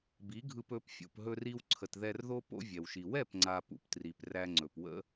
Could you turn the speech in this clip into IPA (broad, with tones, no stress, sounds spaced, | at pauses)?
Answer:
b i˨˦ ɡʱ ɯ˧ p ɵ˨˦ p fʲ o̰˨ p ɦ ɵ˧ r i˧ w ǀʰ ə˨ t ð ɛ˧ r ð o˦ p o̰˦ vʲ ɛ˨ w ʃ i˨ w ɛ˦˨ p ŋ͡ǀ a˨ p ṵ˨ p t r i˨ p r æ˧ ŋ͡ǀ ɵ˨ p w ə̰˦